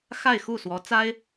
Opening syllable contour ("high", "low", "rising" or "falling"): falling